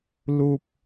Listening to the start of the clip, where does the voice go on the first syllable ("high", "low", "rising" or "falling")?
low